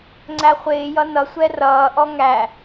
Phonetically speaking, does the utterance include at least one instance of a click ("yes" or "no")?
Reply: yes